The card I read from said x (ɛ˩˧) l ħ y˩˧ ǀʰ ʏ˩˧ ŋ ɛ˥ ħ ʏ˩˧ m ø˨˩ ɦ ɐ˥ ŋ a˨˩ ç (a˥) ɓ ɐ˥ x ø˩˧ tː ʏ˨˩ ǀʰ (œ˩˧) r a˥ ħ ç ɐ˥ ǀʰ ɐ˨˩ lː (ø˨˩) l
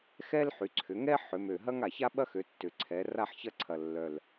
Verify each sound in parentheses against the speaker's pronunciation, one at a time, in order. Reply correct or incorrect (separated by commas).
incorrect, correct, incorrect, incorrect